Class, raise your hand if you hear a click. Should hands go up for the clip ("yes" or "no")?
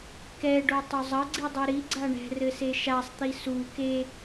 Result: yes